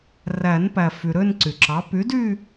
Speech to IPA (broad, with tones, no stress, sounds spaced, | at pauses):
r æ˨˩˦ n p æ˩ f y˩ ɾ ø˥˧ n ǀ y˩ ǁ ɑ˩˥ p y˩˥ d y˥˧